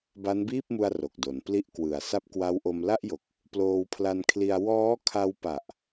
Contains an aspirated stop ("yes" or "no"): yes